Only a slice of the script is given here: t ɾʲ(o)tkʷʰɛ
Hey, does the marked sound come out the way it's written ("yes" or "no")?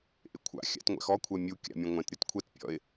yes